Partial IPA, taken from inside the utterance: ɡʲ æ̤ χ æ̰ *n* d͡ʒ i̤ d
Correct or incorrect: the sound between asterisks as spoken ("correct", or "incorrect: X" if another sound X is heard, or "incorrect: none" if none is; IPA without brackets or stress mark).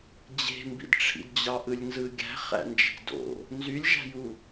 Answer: correct